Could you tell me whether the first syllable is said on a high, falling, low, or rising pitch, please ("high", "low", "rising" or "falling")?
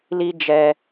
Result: high